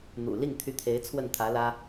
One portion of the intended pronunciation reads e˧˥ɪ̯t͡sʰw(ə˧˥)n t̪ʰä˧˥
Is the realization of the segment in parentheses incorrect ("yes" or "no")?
yes